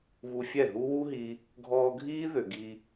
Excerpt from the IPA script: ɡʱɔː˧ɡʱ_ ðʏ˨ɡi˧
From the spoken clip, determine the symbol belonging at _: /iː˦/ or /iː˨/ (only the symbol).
iː˦